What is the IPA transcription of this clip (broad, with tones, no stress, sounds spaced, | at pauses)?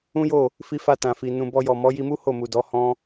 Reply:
ũ˦ j o˦˨ | f i˧ f a˧ t ã˨ f i˨ n ũ˨ b ɔ˧ j ɔ˨ m ɔ˨˦ j i˧ m u˦ h o˦˨ m u˨ d ɔ˨˦ h ɔ̃˦